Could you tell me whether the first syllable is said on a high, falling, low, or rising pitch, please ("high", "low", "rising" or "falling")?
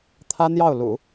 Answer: high